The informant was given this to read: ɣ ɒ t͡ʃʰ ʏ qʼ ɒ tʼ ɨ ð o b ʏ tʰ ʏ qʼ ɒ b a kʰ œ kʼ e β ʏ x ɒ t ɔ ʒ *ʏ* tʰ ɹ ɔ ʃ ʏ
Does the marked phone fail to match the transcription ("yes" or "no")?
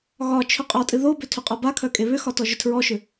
no